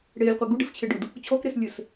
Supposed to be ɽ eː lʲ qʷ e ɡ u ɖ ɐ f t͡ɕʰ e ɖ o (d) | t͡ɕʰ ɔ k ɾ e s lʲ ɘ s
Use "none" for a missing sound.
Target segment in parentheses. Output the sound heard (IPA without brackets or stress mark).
d